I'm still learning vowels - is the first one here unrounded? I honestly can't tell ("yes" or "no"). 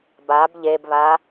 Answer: yes